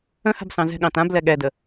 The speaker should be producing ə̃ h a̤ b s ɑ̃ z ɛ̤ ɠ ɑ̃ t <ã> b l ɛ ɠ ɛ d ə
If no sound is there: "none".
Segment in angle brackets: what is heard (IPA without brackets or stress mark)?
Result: ã